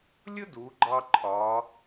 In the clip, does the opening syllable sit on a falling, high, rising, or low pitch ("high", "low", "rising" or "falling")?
high